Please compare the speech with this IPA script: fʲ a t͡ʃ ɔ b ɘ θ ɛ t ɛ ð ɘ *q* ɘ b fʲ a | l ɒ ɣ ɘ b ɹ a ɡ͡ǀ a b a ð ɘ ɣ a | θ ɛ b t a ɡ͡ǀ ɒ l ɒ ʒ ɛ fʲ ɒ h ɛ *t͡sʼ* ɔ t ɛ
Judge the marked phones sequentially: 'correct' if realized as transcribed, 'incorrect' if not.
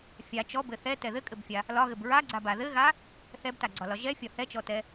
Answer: incorrect, incorrect

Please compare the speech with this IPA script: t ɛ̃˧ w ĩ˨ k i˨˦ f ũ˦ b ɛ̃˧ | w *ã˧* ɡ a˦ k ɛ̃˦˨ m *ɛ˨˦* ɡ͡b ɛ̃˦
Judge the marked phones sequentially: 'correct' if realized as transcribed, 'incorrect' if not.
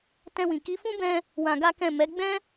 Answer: correct, correct

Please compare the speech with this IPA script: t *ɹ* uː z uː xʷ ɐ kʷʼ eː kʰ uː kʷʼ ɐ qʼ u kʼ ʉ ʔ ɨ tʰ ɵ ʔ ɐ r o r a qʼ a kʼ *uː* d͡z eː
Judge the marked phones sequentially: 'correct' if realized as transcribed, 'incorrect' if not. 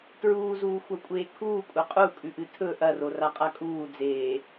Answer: correct, correct

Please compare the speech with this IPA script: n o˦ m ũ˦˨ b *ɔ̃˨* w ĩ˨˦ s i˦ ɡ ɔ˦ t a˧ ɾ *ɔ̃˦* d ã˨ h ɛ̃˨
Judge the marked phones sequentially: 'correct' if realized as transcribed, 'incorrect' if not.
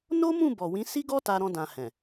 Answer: incorrect, incorrect

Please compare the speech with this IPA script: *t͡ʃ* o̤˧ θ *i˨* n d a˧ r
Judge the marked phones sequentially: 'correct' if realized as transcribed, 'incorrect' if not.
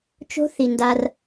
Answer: correct, correct

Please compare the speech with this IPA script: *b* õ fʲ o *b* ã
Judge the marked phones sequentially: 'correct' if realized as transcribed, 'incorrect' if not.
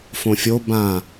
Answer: incorrect, correct

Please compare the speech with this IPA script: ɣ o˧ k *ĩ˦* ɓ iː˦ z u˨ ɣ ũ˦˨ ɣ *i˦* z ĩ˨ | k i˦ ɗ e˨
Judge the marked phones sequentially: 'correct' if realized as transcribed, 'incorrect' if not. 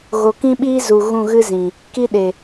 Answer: correct, incorrect

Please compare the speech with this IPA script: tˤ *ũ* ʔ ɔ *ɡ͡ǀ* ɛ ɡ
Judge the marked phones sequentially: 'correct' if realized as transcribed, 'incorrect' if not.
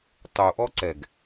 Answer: incorrect, incorrect

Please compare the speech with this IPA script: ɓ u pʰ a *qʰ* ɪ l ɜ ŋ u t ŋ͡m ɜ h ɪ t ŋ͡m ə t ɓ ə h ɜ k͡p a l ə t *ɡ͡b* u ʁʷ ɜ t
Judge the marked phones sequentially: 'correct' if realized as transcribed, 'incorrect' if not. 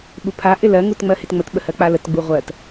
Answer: incorrect, correct

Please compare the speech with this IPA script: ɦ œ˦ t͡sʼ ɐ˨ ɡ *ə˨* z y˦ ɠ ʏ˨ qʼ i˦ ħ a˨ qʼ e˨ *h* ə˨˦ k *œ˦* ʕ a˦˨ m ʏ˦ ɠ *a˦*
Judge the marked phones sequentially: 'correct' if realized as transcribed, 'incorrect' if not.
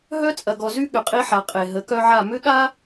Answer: incorrect, incorrect, correct, correct

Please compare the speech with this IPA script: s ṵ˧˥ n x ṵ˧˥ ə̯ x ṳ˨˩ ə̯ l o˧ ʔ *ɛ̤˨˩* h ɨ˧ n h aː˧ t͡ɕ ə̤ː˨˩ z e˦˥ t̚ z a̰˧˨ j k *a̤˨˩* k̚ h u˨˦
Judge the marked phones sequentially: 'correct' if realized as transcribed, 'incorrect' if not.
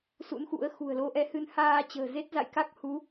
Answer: incorrect, incorrect

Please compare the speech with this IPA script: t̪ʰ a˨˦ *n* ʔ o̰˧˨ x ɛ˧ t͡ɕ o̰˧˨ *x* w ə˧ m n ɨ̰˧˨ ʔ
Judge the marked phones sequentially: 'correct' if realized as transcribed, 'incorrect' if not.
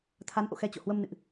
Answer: correct, incorrect

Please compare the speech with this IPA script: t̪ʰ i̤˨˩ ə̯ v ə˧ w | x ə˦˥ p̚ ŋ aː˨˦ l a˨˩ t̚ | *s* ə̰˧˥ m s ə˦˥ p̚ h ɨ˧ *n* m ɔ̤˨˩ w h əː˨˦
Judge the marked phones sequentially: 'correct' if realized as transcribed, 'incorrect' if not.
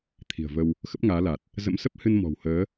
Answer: incorrect, correct

